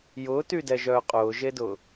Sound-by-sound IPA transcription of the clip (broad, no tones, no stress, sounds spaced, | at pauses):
j ʊː t y d ɛ ʒ œː qʼ ʊː ʒ e d ʊː